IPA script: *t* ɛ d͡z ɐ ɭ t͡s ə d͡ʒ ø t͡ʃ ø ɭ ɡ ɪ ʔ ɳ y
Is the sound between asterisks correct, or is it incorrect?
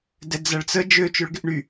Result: incorrect